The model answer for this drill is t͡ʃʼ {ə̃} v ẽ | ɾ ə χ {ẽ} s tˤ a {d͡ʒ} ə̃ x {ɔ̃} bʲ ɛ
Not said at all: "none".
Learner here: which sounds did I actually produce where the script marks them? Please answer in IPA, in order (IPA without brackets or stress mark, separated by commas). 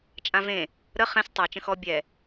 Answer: ã, ɛ̃, t͡ʃ, ɔ